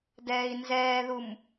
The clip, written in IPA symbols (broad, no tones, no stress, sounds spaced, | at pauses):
d ɛː i̯ n z ɛː ð u m